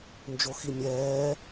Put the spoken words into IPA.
nd͡ʒoximʲɛː

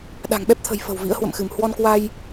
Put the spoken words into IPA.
ɗa̤˨˩ŋɓɛ˦˥p̚t̪ʰə̤˨˩j fə̤˨˩wvḭ˧˥ə̯hwə̰˧˨mxɨ˧˩m hwɔ˧nkwa˧j

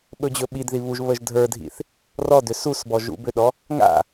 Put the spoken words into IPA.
ɓɵd͡ʑɵɓidði βuʒβəʒ dʱə˞dʱḭθ | rɔdʏ susbɔ ʒṵbʏɗɔ | ŋa̰

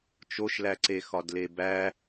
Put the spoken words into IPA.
t͡ʃoʃlæǀe xɒdlebæ

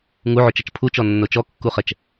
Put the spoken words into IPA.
ŋuʕut͡ʃɐt͡ʃ pʰut͡ʃɔnːo t͡ʃɔkːuχɛt͡ʃ

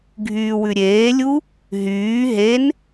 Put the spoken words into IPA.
ɡʱyːwʉɾʲeːlʲu | ɦyː ɦen

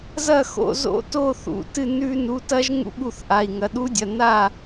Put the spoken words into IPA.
zɐ˥˨xo̰˥˨ zo̰˦˥to˥˨ θṵ˩˧˩ tɨ˥˨ nʉ˦˥ nu˩˧˩tɐ˦˥ʒŋṵ˦˥ ɠu˥˨θʔa˩˧˩i̯ ŋɐ˩˧˩ɗu˦˥dʲɐ˩˧˩ na˥˨

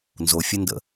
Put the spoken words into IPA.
nzofʲəndə̰

